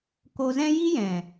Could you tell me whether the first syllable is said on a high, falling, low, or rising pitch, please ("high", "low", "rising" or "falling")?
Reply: low